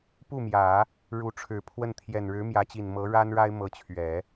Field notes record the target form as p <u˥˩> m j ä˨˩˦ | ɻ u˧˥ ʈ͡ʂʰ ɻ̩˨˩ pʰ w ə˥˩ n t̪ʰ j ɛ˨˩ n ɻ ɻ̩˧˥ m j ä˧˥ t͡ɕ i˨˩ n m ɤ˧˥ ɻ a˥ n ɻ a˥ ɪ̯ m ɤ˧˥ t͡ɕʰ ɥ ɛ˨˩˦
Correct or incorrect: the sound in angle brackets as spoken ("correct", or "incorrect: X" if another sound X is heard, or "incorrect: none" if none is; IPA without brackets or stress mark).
correct